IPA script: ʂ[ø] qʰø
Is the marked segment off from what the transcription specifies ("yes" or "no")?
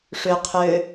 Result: no